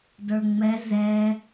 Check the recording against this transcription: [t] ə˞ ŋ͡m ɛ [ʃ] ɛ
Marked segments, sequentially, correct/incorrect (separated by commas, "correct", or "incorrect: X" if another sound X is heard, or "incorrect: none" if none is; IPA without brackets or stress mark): incorrect: d, incorrect: z